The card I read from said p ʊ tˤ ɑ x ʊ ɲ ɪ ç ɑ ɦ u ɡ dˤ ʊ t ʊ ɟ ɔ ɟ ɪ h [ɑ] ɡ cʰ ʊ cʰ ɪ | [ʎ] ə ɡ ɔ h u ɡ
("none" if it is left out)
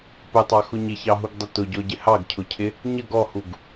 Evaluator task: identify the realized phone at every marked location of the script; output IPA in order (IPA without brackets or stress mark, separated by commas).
ɑ, ɲ